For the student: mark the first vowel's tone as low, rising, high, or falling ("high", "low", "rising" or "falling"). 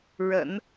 low